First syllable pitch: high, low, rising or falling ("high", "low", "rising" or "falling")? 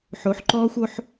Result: rising